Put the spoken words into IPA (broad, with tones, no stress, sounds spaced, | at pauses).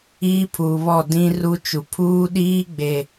iː˦ pʰ uː˨ β ɔ˦˨ d ĩ˦ r u˦ t͡ʃ u˨ pʰ uː˦ ɗ iː˦ ɡ͡b e˨